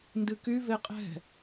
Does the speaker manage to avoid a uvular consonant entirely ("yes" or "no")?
no